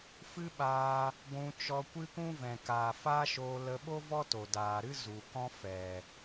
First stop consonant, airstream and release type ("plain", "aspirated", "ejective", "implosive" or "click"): implosive